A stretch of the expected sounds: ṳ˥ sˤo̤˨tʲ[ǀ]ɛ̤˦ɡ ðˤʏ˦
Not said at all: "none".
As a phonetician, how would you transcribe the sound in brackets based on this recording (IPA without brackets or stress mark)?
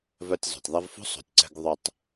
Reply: ǀ